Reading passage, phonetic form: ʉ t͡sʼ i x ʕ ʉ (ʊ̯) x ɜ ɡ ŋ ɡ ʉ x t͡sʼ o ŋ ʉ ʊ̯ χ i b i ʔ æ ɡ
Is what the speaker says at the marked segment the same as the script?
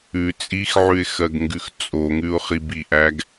no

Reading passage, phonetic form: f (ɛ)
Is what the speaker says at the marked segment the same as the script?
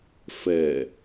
yes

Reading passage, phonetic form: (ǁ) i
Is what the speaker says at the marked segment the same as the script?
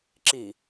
yes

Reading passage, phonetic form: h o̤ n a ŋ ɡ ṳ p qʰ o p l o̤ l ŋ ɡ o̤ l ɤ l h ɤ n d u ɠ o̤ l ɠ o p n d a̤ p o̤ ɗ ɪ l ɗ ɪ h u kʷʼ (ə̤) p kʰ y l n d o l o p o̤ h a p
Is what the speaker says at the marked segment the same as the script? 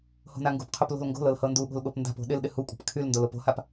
yes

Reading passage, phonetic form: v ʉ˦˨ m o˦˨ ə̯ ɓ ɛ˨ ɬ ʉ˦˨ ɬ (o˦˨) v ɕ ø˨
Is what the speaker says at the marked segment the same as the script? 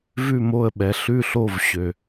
yes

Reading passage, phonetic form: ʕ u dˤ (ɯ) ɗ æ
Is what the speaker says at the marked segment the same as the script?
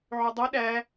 no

